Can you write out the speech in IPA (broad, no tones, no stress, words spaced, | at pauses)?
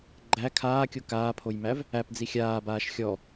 ɡ͡ǃæ kʰaːkʲo kaːpʰojmæv | æpd͡zi xʲaːbaːʃ xʲɔ